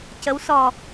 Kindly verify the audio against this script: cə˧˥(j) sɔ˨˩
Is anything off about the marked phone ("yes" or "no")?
yes